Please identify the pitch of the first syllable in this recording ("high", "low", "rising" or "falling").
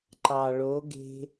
low